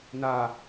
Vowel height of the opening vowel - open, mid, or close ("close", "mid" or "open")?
open